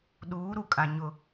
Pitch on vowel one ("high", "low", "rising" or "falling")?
rising